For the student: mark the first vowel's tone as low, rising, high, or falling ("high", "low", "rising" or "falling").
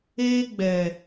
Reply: high